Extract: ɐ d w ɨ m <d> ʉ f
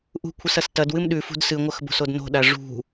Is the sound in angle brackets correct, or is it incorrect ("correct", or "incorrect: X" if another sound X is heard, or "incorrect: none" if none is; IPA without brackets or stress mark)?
incorrect: ɗ